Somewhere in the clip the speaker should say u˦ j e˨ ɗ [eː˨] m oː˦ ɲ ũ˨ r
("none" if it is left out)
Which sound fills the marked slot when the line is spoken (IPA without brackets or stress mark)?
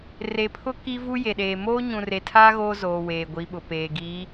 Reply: eː˨